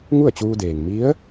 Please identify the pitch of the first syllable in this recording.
falling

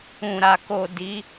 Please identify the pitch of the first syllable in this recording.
low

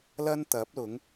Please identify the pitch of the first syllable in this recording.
high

